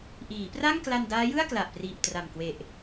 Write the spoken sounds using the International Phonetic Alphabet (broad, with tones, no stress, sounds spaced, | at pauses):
ʔ iː˩˦ p r a˥˩ ŋ k l a˧ n d aː˦˥ j ɯ˥˩ a̯ k l a˨˩ ʔ p r iː˨˩ p̚ t r a˨˩ m k w e˨˩ ʔ